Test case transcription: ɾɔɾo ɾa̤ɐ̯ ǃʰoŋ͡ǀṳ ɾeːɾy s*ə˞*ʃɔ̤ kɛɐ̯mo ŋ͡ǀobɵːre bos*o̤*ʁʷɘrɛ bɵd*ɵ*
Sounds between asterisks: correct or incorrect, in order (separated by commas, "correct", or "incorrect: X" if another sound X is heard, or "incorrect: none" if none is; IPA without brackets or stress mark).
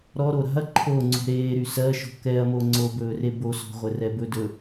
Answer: incorrect: ɜ, incorrect: ɔ̤, correct